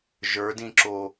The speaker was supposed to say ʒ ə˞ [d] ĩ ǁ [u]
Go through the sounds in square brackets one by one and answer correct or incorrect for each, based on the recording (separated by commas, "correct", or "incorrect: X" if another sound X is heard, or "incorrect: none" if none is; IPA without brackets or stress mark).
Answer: correct, incorrect: o